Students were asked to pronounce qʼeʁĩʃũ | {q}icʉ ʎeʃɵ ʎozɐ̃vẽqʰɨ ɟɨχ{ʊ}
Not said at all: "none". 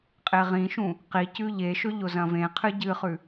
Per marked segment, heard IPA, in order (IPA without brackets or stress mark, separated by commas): q, ʉ